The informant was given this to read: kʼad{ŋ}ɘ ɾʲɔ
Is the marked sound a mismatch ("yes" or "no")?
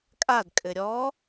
yes